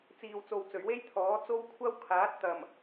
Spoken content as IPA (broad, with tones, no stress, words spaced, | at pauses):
t͡siː˨wt͡so˨w t͡sɵ˨˩ɥwe˥j t̪ʰɔː˨˥t͡so˥w kʷʰɐ˥wkʰaː˨˥t̚ t̪ɐ˨˩m